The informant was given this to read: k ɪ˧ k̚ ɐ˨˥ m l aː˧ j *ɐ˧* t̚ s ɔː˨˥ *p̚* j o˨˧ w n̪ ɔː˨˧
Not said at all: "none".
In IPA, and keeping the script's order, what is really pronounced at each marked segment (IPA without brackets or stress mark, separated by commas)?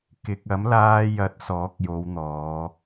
ɐ˨˥, k̚